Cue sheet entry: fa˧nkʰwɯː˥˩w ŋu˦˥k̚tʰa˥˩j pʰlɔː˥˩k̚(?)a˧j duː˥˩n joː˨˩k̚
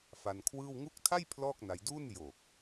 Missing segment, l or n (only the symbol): n